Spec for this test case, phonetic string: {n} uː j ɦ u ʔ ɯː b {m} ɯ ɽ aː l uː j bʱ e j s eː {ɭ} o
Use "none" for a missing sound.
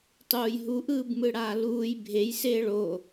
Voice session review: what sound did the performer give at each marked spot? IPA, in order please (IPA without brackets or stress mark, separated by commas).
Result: tˤ, m, ɭ